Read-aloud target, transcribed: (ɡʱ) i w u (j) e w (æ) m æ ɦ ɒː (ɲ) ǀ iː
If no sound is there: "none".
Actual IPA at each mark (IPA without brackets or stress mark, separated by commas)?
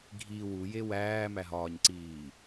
ɡʱ, j, æː, ɲ